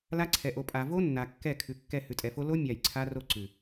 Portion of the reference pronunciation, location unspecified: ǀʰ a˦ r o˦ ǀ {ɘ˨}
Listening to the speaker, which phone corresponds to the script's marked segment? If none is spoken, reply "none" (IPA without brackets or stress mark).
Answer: ʉ˨